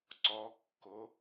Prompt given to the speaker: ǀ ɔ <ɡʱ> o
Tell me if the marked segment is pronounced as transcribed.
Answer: no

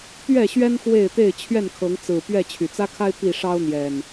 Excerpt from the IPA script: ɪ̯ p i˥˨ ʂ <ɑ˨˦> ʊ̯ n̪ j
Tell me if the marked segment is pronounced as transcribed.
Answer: no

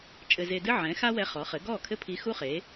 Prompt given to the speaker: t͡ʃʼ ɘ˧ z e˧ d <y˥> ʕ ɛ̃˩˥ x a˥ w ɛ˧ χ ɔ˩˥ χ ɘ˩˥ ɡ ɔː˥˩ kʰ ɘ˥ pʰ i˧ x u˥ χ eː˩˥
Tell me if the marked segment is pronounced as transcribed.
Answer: no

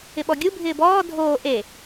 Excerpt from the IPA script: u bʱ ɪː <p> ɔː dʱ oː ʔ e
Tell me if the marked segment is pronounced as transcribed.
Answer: no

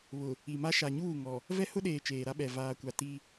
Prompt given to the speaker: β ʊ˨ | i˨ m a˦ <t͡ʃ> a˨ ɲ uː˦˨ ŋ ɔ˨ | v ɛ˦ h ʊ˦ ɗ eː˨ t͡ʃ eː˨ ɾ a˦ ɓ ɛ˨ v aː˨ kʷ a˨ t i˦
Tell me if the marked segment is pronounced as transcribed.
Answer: no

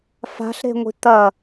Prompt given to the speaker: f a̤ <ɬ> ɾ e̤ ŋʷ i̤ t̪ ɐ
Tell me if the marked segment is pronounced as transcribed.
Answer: yes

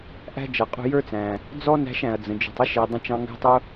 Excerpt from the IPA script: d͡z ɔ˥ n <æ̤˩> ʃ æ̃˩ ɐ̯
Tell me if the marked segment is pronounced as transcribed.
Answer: no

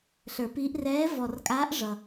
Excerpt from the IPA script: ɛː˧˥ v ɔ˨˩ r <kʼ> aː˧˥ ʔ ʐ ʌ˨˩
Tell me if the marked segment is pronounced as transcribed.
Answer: yes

